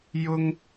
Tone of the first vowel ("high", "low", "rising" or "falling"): high